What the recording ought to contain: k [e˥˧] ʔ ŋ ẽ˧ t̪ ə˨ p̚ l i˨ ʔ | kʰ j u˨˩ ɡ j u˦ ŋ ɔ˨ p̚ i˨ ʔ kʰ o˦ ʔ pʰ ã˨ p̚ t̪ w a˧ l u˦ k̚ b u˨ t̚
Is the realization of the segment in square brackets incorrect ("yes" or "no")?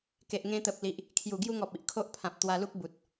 yes